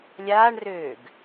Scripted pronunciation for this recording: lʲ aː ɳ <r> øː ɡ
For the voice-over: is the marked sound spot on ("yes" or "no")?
yes